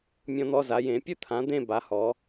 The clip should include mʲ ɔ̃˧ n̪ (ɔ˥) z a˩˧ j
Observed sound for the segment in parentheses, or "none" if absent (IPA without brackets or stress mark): ɔ˧